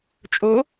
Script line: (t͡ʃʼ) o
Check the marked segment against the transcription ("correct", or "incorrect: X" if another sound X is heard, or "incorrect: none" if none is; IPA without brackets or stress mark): correct